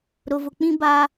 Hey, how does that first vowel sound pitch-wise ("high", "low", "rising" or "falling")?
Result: low